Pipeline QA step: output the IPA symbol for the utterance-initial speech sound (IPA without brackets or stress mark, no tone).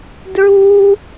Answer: d